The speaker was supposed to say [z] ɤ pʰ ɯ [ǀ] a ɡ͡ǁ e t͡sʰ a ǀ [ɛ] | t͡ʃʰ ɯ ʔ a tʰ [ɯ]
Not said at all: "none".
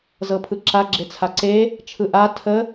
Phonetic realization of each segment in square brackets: z, ǁ, e, ə

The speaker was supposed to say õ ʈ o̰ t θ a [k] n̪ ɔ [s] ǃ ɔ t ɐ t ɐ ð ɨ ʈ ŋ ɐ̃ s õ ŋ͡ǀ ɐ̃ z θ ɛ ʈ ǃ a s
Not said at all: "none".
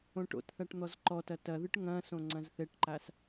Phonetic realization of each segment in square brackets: ʈ, z

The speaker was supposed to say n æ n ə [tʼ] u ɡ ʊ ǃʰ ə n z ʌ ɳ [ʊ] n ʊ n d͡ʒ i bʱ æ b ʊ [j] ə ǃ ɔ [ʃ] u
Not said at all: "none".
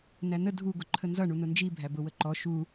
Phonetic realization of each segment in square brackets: dʱ, u, w, ʃ

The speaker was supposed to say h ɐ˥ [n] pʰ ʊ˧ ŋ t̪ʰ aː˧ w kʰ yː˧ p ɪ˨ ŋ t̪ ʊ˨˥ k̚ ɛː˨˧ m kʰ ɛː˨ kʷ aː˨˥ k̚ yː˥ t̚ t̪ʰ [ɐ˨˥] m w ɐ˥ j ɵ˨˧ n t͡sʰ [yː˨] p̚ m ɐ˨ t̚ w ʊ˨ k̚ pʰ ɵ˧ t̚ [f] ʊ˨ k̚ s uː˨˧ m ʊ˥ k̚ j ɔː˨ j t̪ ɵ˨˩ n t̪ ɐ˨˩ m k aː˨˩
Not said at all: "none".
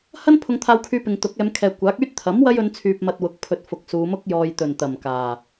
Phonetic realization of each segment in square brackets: n, ɐ˨˥, yː˨, f

